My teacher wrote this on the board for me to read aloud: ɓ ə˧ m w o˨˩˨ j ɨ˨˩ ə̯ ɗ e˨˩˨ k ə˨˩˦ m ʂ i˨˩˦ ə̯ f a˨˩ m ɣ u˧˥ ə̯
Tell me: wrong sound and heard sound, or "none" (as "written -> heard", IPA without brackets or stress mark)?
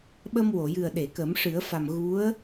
i˨˩˦ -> ɨ˨˩˦